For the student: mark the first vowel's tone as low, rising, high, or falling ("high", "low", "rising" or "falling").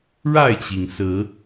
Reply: falling